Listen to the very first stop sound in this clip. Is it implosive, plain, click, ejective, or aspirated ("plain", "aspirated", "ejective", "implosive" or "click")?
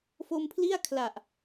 aspirated